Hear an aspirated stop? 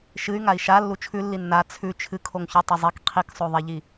yes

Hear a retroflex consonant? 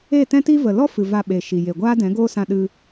no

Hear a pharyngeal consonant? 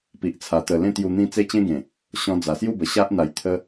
no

